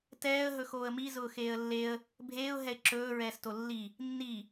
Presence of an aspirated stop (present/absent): absent